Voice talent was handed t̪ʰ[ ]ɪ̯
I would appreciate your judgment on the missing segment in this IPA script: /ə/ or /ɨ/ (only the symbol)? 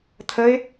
ə